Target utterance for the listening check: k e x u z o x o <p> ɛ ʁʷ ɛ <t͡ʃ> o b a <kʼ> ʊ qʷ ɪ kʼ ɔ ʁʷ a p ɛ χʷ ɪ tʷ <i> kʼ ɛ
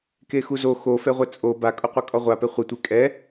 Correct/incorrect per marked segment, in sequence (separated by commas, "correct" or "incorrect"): incorrect, incorrect, correct, incorrect